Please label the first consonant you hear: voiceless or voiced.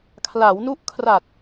voiceless